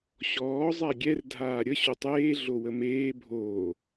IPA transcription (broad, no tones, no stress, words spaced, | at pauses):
ɕɔːzˤa ɡʲɛr dʱaːɾʲə ɕotˤeː ɮowəmeː bʱoː